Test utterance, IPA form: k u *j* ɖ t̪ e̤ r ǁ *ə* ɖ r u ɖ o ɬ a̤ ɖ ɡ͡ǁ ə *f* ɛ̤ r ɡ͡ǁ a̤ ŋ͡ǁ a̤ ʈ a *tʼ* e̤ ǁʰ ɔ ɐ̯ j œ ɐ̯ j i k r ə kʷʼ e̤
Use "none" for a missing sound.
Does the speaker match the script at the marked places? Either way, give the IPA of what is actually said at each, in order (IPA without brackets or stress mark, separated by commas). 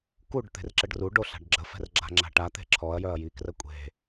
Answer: none, ə, f, t̪